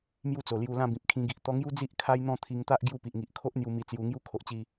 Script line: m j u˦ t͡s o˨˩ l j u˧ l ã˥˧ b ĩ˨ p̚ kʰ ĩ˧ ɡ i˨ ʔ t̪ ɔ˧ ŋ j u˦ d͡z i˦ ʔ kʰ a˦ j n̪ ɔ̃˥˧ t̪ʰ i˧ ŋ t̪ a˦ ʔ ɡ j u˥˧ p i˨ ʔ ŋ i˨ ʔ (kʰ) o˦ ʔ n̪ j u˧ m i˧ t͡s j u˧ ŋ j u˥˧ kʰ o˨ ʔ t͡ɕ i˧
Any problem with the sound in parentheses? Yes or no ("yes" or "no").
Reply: no